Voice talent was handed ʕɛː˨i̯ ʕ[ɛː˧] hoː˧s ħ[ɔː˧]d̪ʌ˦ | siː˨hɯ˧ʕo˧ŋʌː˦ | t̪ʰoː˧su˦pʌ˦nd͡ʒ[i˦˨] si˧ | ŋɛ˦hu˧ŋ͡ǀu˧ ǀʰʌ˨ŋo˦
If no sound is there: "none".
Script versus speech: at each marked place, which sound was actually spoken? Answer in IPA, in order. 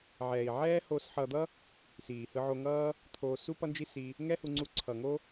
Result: ɛː˦, ʌː˧, i˦

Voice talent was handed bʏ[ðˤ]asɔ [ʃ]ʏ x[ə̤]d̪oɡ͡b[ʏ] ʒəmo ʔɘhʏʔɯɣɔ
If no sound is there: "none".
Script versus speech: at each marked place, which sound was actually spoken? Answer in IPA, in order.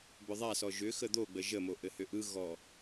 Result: ðˤ, ʒ, ə, ə

